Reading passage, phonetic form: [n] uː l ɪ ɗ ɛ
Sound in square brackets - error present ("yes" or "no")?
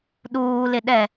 yes